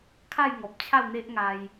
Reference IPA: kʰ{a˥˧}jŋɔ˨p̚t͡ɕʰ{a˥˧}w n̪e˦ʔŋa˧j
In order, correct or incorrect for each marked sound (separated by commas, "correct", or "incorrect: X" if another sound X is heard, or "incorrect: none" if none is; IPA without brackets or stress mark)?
correct, correct